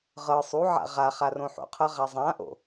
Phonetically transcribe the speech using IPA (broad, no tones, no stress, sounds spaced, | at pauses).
ʁ ɤ sˤ u ʕ a̰ ʁ a χ a r õ ħ o̰ qʰ ʌ ʁ a zˤ ã ʔ o̰